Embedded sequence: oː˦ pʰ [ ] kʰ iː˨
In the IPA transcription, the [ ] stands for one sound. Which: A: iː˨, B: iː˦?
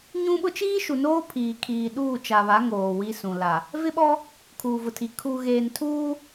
A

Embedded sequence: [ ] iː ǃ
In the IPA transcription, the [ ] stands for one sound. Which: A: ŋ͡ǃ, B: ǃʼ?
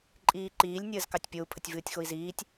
B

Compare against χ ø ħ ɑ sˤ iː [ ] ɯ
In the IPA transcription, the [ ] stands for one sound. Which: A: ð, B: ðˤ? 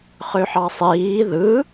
A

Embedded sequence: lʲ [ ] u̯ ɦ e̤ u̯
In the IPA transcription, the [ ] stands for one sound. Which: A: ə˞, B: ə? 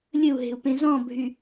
B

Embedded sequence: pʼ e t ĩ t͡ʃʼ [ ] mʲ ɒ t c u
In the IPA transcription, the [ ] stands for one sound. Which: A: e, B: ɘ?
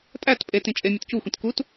A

